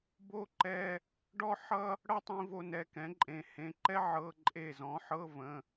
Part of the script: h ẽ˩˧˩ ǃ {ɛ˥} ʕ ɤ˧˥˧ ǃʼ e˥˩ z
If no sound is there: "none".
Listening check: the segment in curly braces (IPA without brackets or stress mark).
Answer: ɛ˥